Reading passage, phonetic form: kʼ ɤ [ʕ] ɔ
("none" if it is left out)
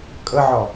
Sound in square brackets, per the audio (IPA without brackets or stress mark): ʕ